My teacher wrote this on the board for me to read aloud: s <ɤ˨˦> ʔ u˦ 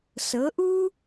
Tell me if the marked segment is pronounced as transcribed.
yes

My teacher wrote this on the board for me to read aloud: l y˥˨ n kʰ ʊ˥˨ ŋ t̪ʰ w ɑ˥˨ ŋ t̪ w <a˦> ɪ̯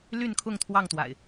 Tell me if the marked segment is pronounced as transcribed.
no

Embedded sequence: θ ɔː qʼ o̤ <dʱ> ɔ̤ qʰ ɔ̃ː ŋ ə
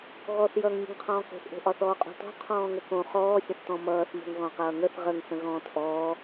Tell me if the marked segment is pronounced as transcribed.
no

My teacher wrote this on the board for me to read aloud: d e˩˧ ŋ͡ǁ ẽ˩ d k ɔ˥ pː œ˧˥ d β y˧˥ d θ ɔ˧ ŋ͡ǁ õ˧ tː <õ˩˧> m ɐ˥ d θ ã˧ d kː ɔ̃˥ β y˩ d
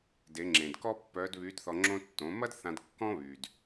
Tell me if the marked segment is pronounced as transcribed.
yes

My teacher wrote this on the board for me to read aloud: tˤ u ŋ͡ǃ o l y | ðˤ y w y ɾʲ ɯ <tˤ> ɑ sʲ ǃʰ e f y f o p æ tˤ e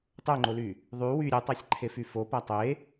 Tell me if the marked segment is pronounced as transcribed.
yes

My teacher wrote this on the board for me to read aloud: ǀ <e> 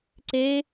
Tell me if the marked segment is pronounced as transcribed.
yes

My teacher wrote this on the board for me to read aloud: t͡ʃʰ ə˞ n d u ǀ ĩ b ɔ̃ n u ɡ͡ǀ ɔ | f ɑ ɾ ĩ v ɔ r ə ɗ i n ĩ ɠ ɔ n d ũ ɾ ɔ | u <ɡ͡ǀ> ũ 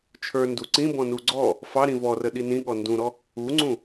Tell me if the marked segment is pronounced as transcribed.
no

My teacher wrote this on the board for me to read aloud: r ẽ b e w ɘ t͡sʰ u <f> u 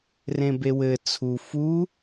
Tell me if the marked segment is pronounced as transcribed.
yes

